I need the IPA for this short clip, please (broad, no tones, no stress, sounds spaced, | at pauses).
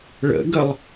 ɭ ə̰ ɡ ə lˠ